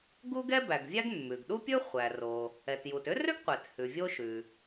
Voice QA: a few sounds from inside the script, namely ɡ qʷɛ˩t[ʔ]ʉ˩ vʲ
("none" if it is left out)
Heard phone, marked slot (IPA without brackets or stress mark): h